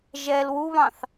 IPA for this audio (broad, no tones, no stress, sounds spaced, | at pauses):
ʒ ɛ l w u β ɑ̃ θ